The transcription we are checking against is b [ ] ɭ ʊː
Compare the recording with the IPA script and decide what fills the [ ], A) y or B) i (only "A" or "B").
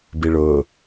B